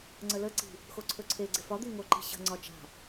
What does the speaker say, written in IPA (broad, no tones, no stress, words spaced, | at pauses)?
ŋ͡ǀələ ǀi̤ | xoǀʰɵǀʰe ɡ͡ǀɪfɒ d̪iŋo ǃi̤ɕə̤ ŋ͡ǀɒt͡ʃa̤